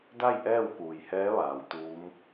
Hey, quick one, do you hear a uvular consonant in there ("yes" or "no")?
no